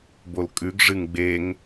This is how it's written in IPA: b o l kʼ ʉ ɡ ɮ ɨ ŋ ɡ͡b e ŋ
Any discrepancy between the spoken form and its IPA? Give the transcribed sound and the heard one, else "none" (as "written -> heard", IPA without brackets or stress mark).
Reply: ɮ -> ʐ